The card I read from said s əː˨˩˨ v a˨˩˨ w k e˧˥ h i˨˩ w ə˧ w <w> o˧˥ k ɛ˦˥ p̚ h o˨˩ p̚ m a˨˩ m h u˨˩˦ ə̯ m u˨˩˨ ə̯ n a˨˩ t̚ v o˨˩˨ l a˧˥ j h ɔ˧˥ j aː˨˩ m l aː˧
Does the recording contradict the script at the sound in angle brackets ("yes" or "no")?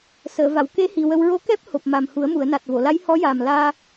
yes